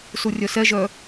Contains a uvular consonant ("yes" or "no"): no